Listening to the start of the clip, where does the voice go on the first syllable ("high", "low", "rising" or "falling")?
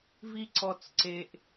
low